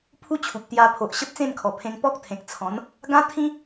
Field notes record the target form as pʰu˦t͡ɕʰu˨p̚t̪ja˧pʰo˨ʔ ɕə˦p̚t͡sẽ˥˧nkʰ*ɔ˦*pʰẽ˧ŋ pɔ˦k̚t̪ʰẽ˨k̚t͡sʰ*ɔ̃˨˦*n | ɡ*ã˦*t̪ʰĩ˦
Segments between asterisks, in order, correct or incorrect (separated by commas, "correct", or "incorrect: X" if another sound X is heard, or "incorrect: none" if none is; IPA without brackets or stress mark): incorrect: ɔ˨˩, correct, correct